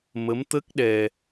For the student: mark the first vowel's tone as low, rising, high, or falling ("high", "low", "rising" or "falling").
rising